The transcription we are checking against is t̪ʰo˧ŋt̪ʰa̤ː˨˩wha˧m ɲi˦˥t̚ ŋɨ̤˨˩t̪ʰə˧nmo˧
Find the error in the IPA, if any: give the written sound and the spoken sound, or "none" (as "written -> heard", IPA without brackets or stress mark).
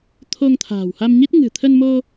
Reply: none